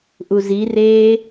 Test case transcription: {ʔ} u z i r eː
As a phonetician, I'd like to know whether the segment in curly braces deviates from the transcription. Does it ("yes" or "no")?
no